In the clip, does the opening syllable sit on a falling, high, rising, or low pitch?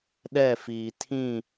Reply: falling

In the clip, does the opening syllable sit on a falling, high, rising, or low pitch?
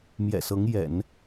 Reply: low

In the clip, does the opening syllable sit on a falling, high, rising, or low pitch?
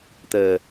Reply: low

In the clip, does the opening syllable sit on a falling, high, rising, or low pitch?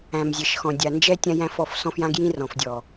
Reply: low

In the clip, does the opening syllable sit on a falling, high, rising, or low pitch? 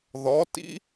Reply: rising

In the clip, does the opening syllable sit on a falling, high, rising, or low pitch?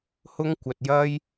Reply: high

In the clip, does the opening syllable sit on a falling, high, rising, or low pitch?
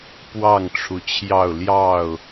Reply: falling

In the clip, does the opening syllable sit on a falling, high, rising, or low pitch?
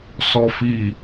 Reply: low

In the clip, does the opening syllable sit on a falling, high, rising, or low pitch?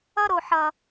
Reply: high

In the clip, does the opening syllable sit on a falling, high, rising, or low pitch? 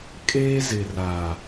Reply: high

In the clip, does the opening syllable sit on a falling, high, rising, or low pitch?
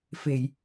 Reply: low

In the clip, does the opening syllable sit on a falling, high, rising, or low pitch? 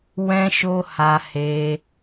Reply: high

